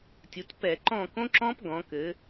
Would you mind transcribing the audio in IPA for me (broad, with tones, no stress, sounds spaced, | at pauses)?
tʲ u˩˧ t p ɛ˧˩˧ ǃ ɔ̃˦˨ k õ˦˥ ǁ ɔ̃˦˥ p ɡ ɔ̃˩˧ k ɘ˩˧